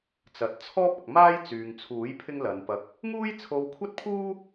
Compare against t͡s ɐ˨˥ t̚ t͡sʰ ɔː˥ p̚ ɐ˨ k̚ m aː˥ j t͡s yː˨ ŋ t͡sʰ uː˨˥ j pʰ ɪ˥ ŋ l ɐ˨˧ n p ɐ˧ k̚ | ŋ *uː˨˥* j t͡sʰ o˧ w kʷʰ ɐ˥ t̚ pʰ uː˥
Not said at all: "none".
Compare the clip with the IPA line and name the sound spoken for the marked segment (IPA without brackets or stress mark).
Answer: uː˥